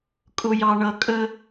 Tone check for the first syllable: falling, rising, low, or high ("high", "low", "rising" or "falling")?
low